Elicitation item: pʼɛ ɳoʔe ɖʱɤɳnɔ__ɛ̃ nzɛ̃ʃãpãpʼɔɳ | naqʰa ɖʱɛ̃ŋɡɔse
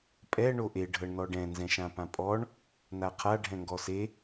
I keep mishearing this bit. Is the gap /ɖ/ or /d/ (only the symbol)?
ɖ